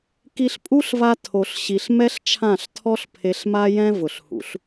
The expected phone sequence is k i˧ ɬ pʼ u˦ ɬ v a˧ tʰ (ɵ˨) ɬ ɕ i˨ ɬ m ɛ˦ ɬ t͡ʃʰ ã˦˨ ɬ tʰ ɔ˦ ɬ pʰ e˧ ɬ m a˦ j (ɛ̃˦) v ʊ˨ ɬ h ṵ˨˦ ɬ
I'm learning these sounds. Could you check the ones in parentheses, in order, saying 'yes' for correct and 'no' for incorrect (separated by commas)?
no, yes